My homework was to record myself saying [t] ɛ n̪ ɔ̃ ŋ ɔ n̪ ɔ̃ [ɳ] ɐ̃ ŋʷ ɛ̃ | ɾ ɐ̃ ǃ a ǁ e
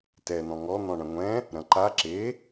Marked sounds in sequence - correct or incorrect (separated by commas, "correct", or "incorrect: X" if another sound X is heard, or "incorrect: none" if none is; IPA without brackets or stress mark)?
correct, correct